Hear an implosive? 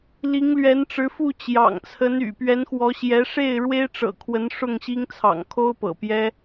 no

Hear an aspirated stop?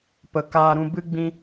no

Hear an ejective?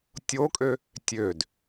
yes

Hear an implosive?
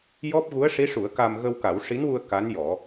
no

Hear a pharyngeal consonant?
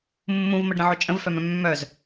yes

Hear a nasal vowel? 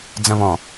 yes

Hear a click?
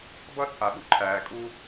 yes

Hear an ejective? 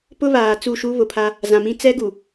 no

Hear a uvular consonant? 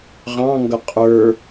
yes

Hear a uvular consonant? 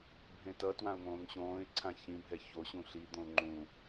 no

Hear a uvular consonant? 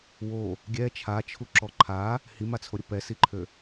no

